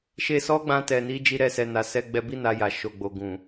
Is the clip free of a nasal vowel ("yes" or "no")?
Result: no